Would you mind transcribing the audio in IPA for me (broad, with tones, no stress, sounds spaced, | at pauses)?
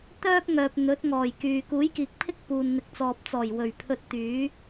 t̪ œː˥ k̚ ŋ œː˨ p̚ n̪ ɵ˨˥ t̚ ŋ ɔː˨˩ j k yː˨ k uː˨˥ j k iː˨ k̚ pʰ ɪ˥ k̚ p uː˨ n n̪ ɪ˨ k̚ t͡s ɔː˨ p̚ t͡s ɔː˨˩ j w ɵ˨˩ ɥ pʰ ɵ˧ t̚ t̪ yː˨˥